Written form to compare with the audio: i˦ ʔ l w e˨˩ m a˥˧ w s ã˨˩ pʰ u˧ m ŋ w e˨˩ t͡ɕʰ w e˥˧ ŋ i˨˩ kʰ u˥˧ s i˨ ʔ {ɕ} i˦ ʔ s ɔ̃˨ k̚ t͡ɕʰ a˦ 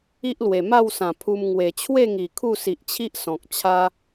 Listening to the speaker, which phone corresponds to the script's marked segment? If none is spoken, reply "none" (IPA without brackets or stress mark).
t͡ɕʰ